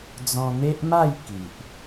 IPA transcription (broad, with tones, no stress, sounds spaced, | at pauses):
d͡z ɔ̃˧ n̪ e˦ ʔ m a˥˧ j k i˨ ʔ